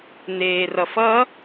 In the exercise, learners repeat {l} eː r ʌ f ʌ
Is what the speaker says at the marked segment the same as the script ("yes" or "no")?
no